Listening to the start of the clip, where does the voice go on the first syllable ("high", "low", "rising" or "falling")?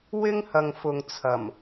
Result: high